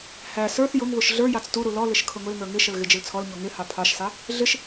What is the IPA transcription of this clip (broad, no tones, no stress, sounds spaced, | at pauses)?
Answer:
h æ s ə˞ θ j ʊ ŋ β ʊ ʃ ɮ ə˞ j ɑ t͡s t u ɾ u l ɔ l ɪ ʃ kʰ ʊ ŋ ʊ l ŋ ə˞ ŋ ɪ ʃ ə l ɣ ɪ d͡ʒ ɪ l t͡sʰ ɔ l ɲ ɔ ŋ ɪ h ɑ pʰ ɑ ʃ s ɑ | ɮ ɪ ʃ